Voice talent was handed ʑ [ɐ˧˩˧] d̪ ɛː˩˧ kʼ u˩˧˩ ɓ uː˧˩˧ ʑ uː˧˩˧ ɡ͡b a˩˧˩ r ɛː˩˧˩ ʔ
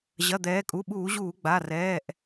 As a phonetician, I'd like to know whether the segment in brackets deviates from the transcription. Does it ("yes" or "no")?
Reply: yes